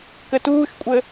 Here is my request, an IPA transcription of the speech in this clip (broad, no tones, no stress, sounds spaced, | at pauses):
k ɘ t uː ʃ kʷʼ ɘ